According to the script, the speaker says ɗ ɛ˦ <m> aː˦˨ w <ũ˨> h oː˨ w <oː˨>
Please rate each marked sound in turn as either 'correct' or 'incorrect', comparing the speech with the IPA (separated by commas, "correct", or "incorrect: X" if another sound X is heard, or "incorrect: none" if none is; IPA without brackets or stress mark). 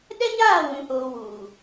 incorrect: ɲ, correct, incorrect: uː˨